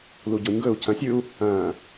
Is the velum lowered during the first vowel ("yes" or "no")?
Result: no